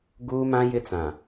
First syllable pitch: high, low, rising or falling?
high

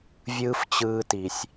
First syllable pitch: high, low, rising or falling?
high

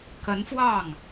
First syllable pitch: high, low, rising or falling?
rising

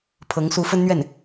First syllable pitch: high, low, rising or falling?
rising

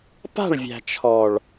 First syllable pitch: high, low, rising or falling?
falling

